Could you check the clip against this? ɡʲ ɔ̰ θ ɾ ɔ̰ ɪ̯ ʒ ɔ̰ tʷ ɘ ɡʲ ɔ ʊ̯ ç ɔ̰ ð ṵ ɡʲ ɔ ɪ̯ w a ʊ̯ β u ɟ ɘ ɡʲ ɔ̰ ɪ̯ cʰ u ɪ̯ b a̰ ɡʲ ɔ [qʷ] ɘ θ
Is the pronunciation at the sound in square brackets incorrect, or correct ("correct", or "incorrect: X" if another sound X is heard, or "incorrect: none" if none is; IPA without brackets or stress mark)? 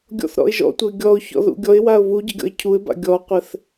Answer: correct